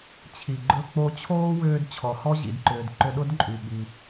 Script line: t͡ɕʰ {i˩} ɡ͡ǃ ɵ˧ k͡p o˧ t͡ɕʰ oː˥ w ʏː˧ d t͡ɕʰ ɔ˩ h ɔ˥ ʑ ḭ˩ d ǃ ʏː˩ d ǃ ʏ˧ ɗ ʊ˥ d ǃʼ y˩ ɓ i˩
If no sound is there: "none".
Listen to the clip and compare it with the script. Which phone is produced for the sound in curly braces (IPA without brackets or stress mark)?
i˩